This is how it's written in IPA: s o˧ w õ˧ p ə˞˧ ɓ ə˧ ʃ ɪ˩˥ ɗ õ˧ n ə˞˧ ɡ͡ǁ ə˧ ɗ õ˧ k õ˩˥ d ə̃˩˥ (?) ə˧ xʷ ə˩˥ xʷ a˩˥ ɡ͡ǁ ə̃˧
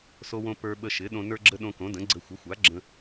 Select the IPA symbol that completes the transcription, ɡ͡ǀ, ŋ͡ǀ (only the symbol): ɡ͡ǀ